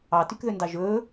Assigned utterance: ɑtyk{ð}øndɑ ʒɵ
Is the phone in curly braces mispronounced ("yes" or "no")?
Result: no